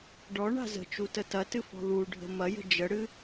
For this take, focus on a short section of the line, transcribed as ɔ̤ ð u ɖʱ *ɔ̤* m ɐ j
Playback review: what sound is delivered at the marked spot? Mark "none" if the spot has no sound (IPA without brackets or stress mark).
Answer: ə̤